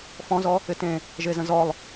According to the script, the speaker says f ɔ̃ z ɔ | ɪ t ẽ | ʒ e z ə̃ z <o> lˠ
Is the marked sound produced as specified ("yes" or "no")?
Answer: no